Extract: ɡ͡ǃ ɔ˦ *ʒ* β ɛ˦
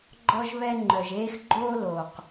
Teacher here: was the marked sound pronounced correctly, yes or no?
yes